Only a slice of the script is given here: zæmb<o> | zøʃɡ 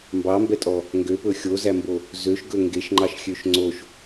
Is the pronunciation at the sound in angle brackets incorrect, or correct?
correct